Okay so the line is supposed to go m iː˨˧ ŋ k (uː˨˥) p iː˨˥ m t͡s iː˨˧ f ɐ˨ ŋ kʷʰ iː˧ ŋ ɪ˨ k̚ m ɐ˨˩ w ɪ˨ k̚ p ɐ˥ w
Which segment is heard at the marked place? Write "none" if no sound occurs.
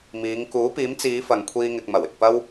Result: uː˨˥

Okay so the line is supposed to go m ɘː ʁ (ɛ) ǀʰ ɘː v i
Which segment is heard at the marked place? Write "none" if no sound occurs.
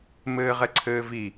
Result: ɛ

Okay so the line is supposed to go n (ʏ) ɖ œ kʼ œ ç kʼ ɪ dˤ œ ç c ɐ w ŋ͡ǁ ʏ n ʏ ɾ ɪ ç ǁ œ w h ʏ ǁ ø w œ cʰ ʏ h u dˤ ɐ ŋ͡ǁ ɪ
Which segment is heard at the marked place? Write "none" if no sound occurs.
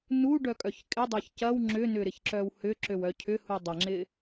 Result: u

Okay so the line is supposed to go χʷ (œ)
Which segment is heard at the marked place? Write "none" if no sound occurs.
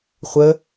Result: ə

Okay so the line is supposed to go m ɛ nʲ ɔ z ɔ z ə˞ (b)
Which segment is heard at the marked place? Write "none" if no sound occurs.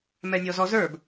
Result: b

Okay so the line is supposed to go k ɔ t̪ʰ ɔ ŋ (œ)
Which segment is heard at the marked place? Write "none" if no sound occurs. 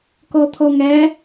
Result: æ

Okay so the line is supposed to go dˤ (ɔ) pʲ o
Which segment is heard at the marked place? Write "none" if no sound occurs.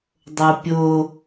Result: o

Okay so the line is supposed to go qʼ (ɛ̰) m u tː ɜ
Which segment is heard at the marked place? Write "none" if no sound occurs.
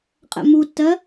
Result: ɛ̰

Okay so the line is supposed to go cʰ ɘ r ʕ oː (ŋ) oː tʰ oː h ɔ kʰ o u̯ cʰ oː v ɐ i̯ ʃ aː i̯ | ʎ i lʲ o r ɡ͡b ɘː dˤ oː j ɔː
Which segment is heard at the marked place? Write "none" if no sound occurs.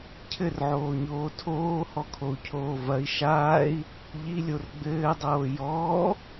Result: ɲ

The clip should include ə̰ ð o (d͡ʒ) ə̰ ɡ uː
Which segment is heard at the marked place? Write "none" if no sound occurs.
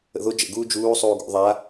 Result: d͡ʒ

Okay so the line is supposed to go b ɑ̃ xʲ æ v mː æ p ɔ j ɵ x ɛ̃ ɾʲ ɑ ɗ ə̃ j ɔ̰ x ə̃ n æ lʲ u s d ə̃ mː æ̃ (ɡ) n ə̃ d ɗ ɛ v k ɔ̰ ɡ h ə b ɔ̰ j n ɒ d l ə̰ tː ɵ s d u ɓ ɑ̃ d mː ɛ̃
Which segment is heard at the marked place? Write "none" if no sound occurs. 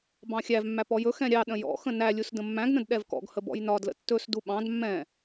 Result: ɡ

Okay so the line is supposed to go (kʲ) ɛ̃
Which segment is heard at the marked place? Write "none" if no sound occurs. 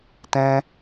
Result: t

